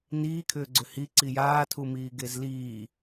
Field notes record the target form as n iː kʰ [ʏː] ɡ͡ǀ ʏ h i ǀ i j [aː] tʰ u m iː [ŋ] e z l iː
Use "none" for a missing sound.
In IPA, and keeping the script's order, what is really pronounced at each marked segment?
ʏː, aː, ɡ

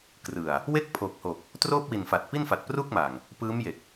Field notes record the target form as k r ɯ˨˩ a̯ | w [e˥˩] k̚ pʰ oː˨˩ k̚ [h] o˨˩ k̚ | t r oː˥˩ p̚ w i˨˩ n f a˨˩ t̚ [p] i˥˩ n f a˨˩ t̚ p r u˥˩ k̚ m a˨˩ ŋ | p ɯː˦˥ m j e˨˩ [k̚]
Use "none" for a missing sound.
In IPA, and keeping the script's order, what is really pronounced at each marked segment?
e˥˩, h, p, k̚

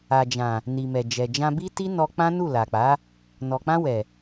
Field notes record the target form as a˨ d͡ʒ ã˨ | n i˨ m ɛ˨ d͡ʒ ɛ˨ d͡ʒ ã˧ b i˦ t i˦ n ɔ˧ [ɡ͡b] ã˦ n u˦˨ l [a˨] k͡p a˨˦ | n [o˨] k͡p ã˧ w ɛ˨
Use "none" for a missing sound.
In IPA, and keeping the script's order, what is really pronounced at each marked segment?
k͡p, a˨, ɔ˨

